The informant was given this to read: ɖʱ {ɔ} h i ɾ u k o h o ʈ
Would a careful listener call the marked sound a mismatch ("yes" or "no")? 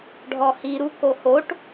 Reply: no